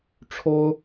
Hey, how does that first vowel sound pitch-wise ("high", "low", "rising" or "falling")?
high